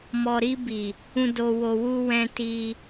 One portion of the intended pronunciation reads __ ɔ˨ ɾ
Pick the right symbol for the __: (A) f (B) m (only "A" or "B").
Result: B